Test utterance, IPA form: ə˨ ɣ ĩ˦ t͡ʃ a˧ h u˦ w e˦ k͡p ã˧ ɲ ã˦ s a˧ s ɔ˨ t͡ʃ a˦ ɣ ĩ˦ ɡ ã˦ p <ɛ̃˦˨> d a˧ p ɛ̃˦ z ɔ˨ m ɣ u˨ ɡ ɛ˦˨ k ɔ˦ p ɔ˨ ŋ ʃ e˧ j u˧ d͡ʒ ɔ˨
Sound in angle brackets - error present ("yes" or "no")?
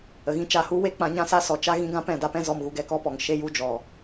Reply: no